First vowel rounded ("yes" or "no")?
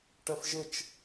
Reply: no